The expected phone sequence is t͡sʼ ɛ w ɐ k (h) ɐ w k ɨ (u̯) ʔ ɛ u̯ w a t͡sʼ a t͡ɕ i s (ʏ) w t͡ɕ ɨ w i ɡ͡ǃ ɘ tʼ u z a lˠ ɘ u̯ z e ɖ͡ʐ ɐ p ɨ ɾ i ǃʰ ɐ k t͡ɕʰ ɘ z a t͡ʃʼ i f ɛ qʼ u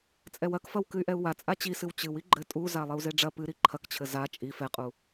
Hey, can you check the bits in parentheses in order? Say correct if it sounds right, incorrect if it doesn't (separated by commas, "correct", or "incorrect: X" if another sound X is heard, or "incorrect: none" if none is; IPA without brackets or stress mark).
incorrect: f, incorrect: y̯, incorrect: ɨ